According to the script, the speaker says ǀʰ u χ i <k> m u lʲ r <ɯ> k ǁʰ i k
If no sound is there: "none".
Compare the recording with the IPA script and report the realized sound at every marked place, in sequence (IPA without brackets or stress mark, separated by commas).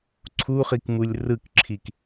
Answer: k, ɯ